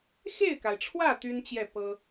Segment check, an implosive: absent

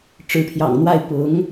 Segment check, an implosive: absent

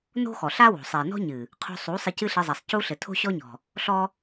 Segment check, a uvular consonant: present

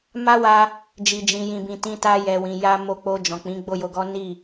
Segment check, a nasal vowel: present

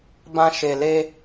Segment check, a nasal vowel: present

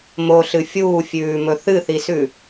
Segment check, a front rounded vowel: absent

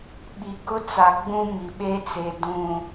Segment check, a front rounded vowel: absent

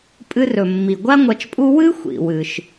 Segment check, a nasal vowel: absent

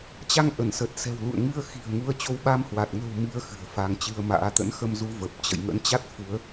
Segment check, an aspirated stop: absent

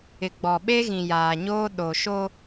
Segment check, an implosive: present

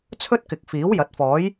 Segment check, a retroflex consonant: absent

